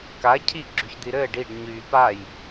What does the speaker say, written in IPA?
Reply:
k a cʰ i ɡ͡ǁ y ç d̪ i ɾ ɘː ɖ i ɖ ɲ yː p a j

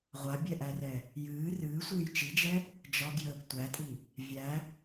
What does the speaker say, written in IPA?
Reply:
ʁʷ a bʲ ɛ ʔ æ r ɛ | j ɨː r ɨː sʷ ɨː j t͡ʃ i d͡ʒ ɛ | d͡ʒ ɒ ɡ j əː ɡ tʷ æ tʼ i | vʲ æ

